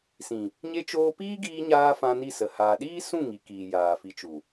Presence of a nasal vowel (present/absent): present